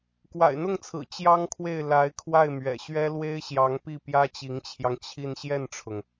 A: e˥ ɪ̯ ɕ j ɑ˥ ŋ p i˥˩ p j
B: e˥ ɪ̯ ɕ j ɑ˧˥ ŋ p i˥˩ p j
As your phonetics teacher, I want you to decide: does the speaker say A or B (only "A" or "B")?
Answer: B